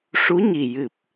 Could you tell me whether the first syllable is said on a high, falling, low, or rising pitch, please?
rising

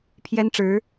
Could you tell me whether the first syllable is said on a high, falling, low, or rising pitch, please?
high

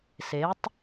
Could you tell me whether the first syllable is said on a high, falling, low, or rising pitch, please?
rising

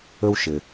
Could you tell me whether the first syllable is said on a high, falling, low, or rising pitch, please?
high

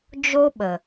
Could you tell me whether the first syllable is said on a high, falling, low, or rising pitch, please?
high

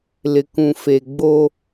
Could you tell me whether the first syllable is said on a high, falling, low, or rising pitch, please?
low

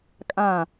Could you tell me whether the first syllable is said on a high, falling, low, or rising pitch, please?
falling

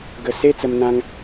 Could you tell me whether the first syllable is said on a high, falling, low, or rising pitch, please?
low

